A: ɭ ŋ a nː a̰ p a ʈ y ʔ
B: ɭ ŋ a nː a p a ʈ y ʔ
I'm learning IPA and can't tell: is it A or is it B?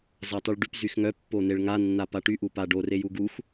B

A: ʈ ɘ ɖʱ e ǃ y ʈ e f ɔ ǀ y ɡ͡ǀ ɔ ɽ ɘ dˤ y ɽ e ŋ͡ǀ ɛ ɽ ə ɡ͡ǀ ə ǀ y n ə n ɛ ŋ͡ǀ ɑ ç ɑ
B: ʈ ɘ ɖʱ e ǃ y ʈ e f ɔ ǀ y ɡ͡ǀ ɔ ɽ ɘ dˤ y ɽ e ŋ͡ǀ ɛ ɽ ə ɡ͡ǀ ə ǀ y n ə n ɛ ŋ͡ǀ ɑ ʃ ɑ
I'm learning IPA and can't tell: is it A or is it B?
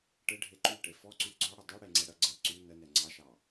B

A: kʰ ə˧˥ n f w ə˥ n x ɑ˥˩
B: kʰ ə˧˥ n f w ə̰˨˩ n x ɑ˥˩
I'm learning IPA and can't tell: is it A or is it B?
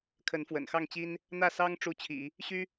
B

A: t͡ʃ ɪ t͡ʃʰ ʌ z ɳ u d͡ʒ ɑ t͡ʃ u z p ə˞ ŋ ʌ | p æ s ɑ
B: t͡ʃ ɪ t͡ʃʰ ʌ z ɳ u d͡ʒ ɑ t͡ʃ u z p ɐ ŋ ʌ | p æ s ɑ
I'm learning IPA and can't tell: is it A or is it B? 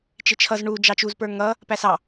A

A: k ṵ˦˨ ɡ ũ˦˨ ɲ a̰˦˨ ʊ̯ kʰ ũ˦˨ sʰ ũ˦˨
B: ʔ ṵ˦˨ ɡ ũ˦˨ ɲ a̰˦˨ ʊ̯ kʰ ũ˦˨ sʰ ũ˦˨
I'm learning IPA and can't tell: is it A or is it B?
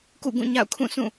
A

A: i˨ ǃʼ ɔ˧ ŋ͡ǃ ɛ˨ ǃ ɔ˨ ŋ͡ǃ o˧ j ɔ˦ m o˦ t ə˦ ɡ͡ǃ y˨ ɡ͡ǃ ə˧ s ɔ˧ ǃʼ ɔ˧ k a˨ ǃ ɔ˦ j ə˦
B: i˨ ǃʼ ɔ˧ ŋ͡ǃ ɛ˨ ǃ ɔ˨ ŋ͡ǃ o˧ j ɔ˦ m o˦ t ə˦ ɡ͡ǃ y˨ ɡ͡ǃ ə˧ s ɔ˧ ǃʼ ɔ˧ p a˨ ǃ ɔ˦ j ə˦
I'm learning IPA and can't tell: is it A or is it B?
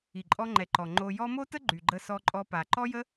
B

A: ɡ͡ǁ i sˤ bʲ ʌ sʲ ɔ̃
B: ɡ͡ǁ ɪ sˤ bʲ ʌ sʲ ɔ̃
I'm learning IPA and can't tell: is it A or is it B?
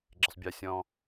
B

